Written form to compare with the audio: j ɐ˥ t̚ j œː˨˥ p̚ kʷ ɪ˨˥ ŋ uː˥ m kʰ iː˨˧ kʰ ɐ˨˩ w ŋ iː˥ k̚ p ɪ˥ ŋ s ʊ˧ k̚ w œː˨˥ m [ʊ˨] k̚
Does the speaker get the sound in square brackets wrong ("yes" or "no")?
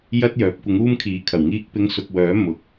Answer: yes